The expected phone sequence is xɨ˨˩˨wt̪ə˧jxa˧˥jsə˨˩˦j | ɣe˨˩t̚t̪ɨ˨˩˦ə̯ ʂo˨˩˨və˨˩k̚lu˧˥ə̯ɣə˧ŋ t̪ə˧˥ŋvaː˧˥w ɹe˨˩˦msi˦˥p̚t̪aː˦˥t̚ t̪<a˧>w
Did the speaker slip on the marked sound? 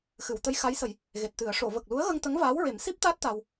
no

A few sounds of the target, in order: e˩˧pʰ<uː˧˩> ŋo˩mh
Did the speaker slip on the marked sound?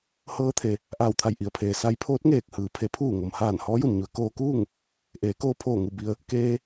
no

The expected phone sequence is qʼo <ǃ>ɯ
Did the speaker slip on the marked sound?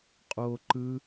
no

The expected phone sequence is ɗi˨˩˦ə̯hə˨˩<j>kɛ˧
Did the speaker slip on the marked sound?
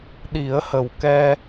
yes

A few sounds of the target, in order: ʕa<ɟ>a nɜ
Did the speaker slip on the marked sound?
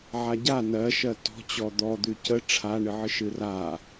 no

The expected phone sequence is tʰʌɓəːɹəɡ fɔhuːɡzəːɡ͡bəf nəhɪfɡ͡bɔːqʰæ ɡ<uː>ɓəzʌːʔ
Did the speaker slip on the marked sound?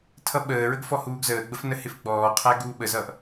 no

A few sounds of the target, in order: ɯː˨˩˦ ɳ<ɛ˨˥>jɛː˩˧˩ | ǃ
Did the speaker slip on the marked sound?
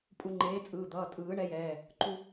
no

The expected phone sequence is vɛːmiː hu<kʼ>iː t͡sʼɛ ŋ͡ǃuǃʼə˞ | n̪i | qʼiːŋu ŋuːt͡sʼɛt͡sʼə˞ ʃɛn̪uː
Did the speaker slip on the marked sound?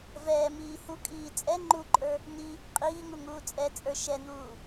no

